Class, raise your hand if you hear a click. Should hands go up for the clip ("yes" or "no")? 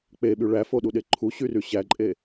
yes